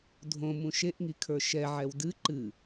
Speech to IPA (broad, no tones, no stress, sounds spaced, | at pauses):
dʱ õ m ũ ʃ e ʔ ŋ i kʰ ə˞ ʃ ɛ ʕ ɛ w d ɨ ǃ ɨ